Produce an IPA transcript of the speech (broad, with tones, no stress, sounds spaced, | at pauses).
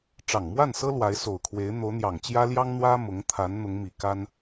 ʈ͡ʂ ɑ˨˩ ŋ m w a˥˩ n s ɤ˥ l w a˧˥ ɪ̯ s o˨˩ ʊ̯ kʰ w e˧˥ ɪ̯ n̪ o˧˥ ʊ̯ n̪ j ɑ˨˩ ŋ t͡ɕ j ä˥ l j ɑ˥ ŋ n̪ w ä˥ m ʊ˧˥ ŋ t̪ʰ a˧˥ n n̪ ʊ˧˥ ŋ m i˨˩ k a˥ n